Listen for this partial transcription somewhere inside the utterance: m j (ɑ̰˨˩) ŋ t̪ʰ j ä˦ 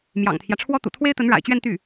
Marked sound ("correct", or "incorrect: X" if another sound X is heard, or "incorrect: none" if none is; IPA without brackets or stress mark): correct